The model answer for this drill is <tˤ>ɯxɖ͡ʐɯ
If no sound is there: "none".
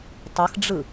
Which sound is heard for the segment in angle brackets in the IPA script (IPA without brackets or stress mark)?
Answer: tˤ